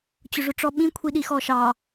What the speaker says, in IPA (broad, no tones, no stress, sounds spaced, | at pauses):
t͡ɕ ʊ ʐ ʊ ʈ͡ʂ ɔ ɓ ĩ kʷʰ i ɗ i x ɔ ʃ ɑ